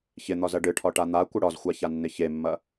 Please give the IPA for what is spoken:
ç ɪ n̪ ɒ z ɐ ɖ ɨ ʈʰ ɒ ʈ a n̪ a kʷ ɪ ɽ ɒ z xʷ a ç a nː ɪ ç e mː ɐ

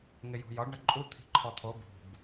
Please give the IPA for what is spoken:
ŋ ɪ j ṳ j ɒ ɖ ɳ ə ǃʼ u t̪ʰ i̤ ǃʰ ɔ t̪ʰ o b ṳ b

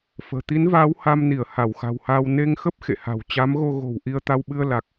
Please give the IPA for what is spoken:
f ə̤ː˨˩ t̪ i˨˦ n v aː˨˦ w h a˧ m n i˧˩ ə̯ h a˧˩ w x a̤˨˩ w h aː˧ w n e˧ ŋ x ə˦˥ p̚ x ḛ˧˨ h a̤˨˩ w t͡ɕ a˨˦ m ɣ o˧ ɣ o̤˨˩ w ʔ i˧ ə̯ t̪ a˧ w ɓ ɨ˧ ə̯ l a˨˩ k̚

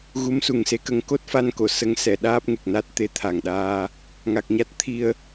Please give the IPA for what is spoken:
ɣ u˧˥ m s u˨˩ ŋ s e˧˥ k ə˨˩˦ ŋ k o˦˥ t̚ f a˧ n k o˨˩˨ s ə˧˥ ŋ s ɛ˨˩˨ ɗ aː˦˥ p̚ ŋ e˨˩ k̚ n a˦˥ t̚ t̪ e˧˥ t̪ʰ a˨˩ ŋ ɗ aː˧ | ŋ a˨˩ k̚ ɲ a˦˥ t̚ t̪ʰ i˧ ə̯

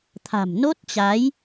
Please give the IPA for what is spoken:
t̪ʰ a̤˨˩ m n o˦˥ t̚ t͡ɕ a˨˦ j

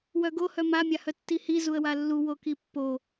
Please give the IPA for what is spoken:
w œ ɡ o h œ m a mʲ a h œ tː i h i z u ə̯ w a lː u w o k i pː o

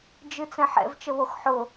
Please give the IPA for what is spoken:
d͡ʒ ɨ t͡s ɛ̃ ħ ɛ̰ v t͡ʃ ə β o x ħ ʊ

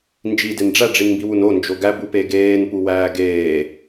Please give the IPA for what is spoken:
n d͡ʒ i d e n ɖ͡ʐ æ ɖ͡ʐ i n m b i w u n o n d͡ʒ o ɡ æ b u p e ɡ eː n p u w æː ɡ eː

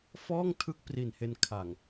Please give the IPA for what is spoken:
f ɔː˥˩ ŋ tʰ ɯ˦˥ k̚ p r i˨˩ n h e˧ n kʰ a˨˩ ŋ

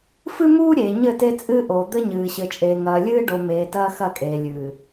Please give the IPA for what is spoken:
f ɨ˦ m uː˦ ɾʲ e˨ ɲ ɘ˦˨ t e˦ t͡sʼ ɨː˦ ʔ oː˨ d̪ ɘ˦ ɲ ɨː˨ ɕ ɘ˨ t͡ʃʼ eː˨ ŋ ɐː˨ lʲ ɨː˦ ɖ o˨ m eː˨ t ɐː˦ x ɐ˦˨ kʼ eː˨ lʲ ɨː˨

